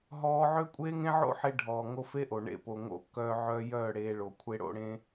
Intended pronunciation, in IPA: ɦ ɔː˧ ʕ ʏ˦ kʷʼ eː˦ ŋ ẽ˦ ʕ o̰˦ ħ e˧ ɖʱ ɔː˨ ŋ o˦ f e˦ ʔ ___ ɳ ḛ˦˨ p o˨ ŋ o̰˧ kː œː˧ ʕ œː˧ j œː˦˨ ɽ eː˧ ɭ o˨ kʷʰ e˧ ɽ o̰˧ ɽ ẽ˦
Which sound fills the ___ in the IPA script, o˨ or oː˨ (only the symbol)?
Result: o˨